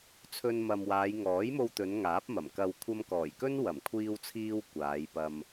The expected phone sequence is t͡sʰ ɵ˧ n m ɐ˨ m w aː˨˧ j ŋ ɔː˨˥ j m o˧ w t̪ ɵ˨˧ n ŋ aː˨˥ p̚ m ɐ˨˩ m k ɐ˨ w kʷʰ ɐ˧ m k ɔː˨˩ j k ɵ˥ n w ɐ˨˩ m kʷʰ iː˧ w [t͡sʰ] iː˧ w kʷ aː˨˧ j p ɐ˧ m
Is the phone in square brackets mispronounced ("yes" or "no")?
no